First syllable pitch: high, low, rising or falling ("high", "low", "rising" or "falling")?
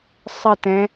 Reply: falling